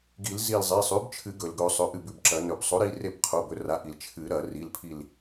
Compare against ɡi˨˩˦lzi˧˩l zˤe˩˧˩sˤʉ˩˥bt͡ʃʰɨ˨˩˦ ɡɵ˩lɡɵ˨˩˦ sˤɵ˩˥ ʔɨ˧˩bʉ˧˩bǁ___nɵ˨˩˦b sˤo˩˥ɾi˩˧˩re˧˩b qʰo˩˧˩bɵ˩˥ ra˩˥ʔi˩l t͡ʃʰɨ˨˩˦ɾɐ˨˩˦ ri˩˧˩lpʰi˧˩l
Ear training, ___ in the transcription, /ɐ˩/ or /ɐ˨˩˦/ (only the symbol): ɐ˨˩˦